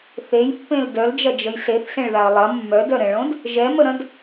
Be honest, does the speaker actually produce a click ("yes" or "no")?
no